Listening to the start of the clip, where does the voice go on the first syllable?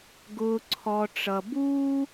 low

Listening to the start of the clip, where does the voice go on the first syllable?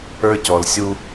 high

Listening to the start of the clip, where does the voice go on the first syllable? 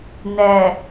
low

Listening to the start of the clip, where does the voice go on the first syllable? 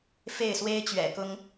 falling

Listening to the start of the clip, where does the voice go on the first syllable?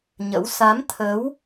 rising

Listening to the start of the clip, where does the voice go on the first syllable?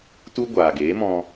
high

